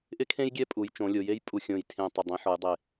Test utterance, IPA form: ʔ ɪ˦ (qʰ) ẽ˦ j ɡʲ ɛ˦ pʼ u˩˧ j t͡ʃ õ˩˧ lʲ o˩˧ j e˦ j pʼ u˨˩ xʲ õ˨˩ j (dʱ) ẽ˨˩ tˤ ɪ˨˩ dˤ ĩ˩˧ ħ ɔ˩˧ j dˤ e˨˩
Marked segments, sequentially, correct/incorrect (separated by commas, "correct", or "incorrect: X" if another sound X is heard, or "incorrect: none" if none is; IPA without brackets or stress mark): incorrect: kʰ, incorrect: tʰ